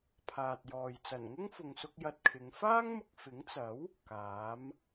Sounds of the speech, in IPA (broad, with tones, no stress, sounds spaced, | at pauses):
pʰ aː˨ t̚ j ɔː˨ j t͡s ɐ˨˩ n ŋ ʊ˥ ŋ f ʊ˨ ŋ s ʊ˧ k̚ j ɐ˧ t̚ kʰ ɪ˨˧ ŋ f aː˥ ŋ m ʊ˧ k̚ f ɪ˨˥ ŋ t͡s ɐ˨˥ w | k aː˨˥ m